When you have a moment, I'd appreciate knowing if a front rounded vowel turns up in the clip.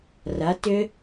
yes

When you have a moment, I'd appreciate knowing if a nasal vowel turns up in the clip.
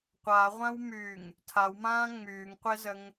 yes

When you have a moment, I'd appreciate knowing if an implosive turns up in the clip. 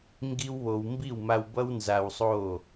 no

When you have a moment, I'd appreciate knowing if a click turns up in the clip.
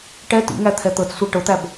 no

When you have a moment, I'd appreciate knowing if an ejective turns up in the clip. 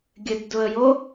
no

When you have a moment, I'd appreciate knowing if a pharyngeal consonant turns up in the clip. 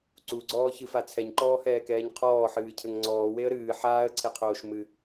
yes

